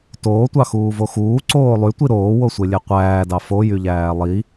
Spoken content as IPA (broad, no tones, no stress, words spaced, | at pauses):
toːtʷɑxuːvo xuːǀoː lˠytʷi ɾoːwosʷelʲe qʷæːdɑ fojyʎæː lˠi